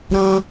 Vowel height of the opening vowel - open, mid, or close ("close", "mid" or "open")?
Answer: open